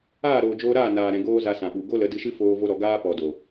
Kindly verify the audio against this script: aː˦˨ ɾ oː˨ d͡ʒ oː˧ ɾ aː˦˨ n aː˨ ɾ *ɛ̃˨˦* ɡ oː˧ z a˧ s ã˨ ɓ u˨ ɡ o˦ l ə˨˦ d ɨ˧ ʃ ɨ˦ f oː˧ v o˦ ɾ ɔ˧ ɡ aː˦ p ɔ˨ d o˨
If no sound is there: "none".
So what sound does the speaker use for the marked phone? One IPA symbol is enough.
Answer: ɛ̃˨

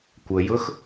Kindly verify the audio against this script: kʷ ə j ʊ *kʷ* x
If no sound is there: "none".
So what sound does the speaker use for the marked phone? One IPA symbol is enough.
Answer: none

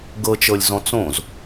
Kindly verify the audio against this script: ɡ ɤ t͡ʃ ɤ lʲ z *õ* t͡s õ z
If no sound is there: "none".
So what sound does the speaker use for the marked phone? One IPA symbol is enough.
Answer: ɔ̃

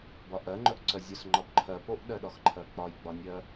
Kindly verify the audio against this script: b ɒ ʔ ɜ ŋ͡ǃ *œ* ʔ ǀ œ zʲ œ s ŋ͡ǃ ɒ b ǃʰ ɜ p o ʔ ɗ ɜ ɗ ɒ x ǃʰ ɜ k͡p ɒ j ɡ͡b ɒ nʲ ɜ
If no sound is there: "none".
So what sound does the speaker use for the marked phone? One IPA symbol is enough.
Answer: œ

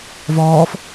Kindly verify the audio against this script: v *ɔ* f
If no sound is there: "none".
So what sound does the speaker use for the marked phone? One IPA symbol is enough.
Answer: ɔː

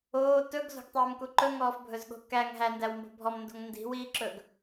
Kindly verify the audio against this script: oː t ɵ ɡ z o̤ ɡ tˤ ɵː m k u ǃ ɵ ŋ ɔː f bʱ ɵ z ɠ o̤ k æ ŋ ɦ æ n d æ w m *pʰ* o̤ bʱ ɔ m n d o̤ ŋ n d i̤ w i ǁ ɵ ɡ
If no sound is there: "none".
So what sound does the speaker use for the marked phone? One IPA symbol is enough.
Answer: b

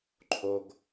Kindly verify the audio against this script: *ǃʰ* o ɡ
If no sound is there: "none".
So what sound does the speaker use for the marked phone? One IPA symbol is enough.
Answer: ǃʰ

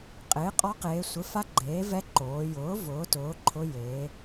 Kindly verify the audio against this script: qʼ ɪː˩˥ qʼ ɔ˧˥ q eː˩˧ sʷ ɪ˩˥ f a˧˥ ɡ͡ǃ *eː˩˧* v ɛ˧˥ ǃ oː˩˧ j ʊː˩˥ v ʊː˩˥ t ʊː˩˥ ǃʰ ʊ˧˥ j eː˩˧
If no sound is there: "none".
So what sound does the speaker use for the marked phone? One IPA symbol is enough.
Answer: eː˩˥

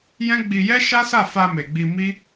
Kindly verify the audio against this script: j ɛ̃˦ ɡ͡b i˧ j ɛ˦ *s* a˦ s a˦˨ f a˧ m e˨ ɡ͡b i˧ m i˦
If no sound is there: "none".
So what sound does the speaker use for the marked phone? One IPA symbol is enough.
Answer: ʃ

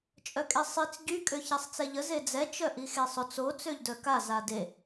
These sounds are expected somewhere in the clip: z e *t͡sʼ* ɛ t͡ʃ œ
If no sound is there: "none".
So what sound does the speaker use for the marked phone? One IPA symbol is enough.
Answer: d͡z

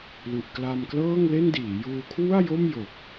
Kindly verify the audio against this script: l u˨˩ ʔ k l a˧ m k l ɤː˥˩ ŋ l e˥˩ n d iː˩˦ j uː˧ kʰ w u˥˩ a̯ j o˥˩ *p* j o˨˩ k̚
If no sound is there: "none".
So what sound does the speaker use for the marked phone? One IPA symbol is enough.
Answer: m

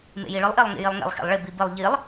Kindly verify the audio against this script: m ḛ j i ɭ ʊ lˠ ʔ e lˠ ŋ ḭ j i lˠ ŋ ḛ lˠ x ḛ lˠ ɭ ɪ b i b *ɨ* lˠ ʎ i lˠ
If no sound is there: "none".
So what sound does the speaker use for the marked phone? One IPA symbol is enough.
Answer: ɨ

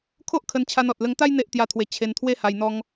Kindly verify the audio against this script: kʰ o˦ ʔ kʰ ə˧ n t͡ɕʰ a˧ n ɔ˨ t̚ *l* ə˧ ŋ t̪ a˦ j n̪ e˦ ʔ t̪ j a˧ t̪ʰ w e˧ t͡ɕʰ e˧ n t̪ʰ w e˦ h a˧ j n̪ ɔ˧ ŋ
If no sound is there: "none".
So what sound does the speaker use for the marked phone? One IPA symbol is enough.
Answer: l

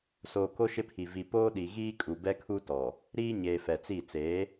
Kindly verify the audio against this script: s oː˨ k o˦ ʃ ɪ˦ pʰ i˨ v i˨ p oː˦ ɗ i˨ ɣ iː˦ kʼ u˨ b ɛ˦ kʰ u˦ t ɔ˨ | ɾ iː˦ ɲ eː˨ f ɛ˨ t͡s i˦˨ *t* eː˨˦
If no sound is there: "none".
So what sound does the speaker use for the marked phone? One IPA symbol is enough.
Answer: t͡s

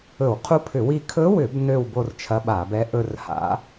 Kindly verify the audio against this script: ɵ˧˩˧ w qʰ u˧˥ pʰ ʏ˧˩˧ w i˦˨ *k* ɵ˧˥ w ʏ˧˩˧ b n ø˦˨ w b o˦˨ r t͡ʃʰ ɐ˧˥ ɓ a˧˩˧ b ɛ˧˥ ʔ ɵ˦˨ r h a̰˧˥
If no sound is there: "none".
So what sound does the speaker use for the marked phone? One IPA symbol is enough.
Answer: kʰ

